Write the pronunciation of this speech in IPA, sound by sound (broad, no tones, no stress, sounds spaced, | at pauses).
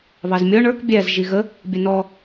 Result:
β ɑ z mʲ ɔ ɳ ə˞ k bʲ æ z ʒ i ɣ ə | bʲ ə n ɔ